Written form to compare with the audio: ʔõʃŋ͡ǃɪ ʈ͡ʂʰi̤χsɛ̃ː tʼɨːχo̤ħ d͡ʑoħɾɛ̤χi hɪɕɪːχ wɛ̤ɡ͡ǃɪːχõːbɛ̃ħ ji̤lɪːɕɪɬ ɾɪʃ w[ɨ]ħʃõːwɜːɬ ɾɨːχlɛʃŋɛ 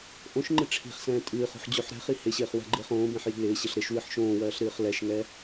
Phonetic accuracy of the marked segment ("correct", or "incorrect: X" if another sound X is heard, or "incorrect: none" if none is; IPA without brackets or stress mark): correct